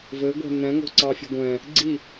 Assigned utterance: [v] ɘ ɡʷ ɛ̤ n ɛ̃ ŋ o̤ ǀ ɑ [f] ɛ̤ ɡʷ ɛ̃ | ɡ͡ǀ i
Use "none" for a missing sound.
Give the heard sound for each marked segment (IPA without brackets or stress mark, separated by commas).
v, fʲ